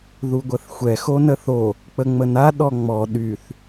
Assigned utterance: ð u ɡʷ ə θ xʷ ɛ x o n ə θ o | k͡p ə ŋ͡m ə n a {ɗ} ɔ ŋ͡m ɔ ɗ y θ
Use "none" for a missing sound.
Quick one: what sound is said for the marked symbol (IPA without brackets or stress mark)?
ɗ